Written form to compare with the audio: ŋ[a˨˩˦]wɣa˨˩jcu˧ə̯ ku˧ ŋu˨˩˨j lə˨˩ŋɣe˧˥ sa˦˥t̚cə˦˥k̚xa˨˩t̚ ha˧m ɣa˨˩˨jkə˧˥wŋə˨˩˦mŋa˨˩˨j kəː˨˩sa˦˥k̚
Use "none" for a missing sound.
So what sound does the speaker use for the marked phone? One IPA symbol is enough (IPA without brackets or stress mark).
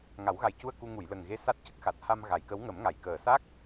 a˨˩˦